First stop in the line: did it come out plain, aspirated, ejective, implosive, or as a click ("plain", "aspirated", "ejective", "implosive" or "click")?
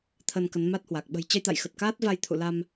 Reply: aspirated